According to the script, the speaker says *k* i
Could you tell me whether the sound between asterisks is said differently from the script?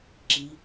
yes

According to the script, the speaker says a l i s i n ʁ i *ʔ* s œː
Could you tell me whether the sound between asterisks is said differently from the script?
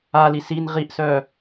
no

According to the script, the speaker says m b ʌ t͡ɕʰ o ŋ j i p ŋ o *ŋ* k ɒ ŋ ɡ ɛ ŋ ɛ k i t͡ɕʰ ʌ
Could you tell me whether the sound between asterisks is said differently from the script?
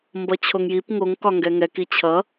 no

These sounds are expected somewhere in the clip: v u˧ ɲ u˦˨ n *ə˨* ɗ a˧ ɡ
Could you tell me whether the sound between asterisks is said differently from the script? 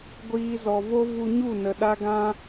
no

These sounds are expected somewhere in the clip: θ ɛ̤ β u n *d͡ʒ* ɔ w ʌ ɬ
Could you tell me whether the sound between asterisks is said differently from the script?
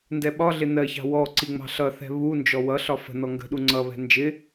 no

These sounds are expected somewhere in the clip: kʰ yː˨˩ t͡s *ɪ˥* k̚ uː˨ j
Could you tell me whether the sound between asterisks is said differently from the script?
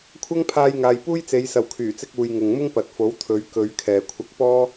yes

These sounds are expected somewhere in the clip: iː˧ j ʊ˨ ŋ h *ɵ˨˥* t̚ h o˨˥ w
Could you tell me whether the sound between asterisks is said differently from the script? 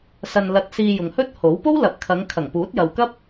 yes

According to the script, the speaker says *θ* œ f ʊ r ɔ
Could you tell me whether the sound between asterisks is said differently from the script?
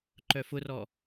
yes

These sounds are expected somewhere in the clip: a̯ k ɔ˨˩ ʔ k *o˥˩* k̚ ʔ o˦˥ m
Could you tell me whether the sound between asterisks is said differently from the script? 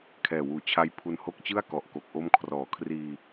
yes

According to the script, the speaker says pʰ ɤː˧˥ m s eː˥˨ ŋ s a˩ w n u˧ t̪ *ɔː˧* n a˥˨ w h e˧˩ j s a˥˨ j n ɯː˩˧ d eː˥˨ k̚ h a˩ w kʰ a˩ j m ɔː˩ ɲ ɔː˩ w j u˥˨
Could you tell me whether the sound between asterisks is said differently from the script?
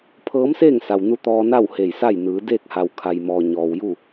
no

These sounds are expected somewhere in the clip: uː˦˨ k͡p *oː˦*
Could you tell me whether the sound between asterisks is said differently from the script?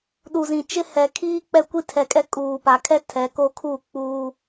yes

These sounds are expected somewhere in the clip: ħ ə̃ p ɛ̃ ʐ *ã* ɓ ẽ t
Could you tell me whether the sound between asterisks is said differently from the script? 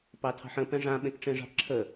no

